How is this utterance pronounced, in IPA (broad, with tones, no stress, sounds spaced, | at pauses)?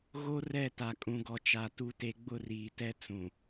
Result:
ɣ o˦ r ɛ˦˨ t a˨ kʼ ũ˨ ɡ ɔ˨ t͡ʃ a˨ t u˦ t e˦ ɡ͡b ʊ˦˨ r iː˨ t ɛ˦ t͡s ũ˨